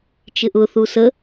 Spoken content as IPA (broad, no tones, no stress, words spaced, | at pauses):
t͡ʃɪʔʊ θusə